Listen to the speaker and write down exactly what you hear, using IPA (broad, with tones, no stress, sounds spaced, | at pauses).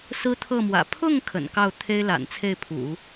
s ɹ̩˥ t̪ʰ ɤ˥˩ m w ä̰˨˩ pʰ ʊ˥˩ ŋ kʰ ə̰˨˩ n k ɑ˥˩ ʊ̯ t̪ʰ e˥ ɪ̯ l a̰˨˩ n t͡sʰ e˥˩ ɪ̯ pʰ ṵ˨˩˦